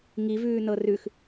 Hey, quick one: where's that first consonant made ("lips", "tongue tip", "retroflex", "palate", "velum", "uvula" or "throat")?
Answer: velum